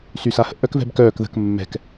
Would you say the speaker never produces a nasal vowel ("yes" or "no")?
yes